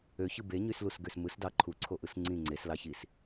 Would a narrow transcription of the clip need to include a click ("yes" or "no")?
yes